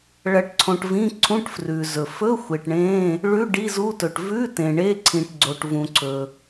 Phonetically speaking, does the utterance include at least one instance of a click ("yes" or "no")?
yes